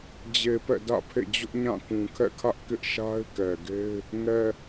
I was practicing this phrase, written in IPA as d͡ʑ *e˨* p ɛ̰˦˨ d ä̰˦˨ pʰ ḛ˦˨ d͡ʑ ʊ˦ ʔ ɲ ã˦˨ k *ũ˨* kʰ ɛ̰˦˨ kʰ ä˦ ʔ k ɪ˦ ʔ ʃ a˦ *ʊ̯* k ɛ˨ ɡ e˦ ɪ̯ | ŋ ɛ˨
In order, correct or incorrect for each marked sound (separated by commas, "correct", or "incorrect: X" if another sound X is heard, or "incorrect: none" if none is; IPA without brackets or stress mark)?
correct, correct, incorrect: ɪ̯